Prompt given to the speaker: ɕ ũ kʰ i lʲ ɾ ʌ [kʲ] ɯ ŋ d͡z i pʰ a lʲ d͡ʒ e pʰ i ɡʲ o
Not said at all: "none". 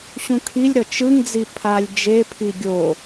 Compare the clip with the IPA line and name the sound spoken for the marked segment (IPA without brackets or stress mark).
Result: t͡ʃ